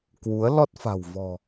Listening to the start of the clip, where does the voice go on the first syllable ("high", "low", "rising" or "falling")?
rising